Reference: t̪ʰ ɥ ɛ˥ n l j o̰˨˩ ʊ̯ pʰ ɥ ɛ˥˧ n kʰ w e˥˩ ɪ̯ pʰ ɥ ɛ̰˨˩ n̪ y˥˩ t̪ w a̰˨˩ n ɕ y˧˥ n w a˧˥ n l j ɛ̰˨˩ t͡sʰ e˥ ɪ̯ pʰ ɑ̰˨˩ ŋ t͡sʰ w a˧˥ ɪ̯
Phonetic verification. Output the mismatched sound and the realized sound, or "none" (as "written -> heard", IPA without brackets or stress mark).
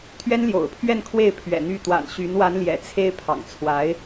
none